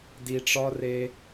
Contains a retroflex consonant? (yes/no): yes